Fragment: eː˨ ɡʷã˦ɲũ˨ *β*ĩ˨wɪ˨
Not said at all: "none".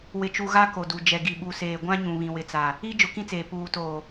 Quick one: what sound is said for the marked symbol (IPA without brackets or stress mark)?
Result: β